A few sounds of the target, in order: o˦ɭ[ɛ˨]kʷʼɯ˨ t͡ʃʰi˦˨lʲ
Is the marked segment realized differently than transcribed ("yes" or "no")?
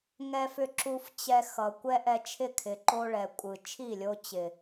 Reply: no